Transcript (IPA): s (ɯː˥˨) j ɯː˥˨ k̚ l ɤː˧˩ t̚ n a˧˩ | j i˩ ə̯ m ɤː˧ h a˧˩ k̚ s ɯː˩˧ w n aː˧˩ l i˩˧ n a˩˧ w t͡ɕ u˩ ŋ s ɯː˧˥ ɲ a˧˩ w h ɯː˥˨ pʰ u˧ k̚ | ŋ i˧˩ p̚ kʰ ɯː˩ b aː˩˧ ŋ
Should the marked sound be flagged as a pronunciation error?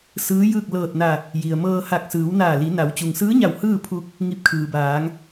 yes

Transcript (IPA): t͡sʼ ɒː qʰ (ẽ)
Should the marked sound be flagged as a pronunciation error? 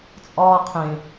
no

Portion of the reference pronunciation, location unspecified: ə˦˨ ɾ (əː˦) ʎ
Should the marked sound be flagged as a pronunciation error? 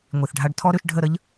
yes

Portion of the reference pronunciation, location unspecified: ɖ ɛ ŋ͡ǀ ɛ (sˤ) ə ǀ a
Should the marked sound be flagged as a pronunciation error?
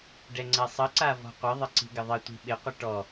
no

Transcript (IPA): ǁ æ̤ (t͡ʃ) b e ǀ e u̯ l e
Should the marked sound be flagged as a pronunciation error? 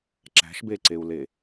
yes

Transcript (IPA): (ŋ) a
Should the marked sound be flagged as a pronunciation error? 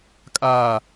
yes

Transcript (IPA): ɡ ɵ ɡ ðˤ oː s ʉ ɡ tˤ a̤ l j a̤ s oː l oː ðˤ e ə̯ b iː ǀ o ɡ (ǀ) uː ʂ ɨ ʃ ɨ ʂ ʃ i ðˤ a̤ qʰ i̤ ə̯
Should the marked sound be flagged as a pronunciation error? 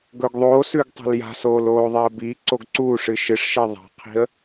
no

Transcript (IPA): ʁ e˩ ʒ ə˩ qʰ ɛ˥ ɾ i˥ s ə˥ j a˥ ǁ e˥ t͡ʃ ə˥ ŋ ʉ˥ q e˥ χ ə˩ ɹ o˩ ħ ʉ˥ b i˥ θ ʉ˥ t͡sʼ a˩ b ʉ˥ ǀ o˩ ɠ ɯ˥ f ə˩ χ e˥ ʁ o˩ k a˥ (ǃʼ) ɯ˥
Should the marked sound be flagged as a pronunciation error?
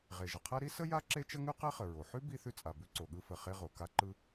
yes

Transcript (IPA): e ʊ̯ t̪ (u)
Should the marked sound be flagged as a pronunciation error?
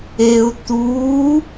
no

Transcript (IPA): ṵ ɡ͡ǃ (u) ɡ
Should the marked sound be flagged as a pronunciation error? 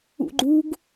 no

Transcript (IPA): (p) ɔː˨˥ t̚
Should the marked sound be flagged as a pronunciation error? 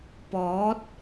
no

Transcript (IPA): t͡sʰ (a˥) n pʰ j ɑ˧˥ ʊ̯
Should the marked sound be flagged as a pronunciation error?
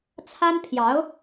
no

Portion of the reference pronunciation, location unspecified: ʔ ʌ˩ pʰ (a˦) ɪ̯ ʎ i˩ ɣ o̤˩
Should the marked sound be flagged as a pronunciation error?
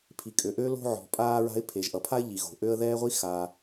no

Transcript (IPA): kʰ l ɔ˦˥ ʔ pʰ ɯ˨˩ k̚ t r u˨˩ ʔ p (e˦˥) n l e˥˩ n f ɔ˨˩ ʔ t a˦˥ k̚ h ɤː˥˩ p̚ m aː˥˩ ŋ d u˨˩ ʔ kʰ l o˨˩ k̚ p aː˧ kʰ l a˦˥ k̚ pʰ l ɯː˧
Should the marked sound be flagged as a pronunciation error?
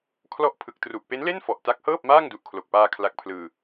no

